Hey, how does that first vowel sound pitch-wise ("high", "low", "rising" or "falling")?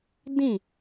falling